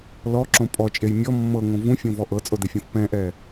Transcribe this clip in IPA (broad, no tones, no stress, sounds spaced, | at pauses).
l ɔ ǁ õ pʼ ɔ t͡ʃʼ e j mʲ ɔ mː ɤ ŋ õ v ũ fʲ õ v ɔ ʔ ɤ t͡sʼ o d e fʲ õ f p ɛ̃ ʔ ɛ